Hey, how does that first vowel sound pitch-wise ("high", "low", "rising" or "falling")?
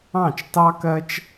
falling